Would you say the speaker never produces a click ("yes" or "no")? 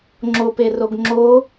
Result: no